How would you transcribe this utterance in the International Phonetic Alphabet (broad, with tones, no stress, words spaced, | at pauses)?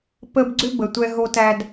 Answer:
pə˦b ɡ͡ǀʏ˦ bə˧ tʷɛ˦ɦo˦tæ˦d